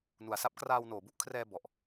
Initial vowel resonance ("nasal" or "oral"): oral